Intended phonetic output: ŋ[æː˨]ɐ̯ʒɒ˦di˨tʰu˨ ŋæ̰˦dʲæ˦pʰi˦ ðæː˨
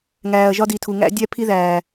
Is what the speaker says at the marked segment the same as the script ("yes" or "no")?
yes